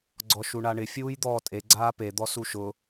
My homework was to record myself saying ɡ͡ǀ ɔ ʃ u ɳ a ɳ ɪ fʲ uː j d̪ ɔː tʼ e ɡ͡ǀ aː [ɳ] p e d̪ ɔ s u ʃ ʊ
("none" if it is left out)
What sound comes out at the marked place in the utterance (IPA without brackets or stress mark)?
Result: none